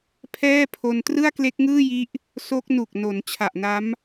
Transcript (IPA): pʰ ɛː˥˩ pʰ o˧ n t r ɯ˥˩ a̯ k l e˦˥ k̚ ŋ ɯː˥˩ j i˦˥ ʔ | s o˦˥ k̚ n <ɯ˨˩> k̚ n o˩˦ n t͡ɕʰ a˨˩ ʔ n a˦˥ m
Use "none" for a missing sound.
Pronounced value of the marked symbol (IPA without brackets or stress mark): u˨˩